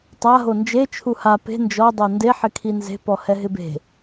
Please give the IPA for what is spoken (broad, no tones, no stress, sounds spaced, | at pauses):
tˤ a ɦ o n d͡ʒ e t͡ʃʰ u h a p e̤ n d͡ʒ ɔ dˤ o n d e ħ ɪ kʰ i n z e̤ p ɔ h ɛ ɦ ɪ b e̤